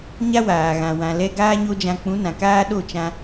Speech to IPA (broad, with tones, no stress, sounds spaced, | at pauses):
ɲ a˦ w aː˨ ɣ ã˨ w ã˨ l ɛ˧ ɡ aː˦ ɲ o˦ d͡ʒ ã˧ k͡p ũ˨˦ n ã˨ k aː˦ ɗ o˦˨ t͡ʃ ã˧